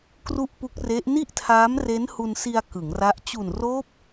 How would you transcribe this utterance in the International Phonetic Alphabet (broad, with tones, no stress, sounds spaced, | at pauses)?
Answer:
k r u˥˩ ʔ p u˦˥ k̚ r e˦˥ ʔ n i˥˩ ʔ tʰ aː˦˥ m r e˦˥ n h u˧ n s i˧ a̯ k ɯ˩˦ ŋ r a˦˥ ʔ t͡ɕ u˨˩ n r oː˦˥ p̚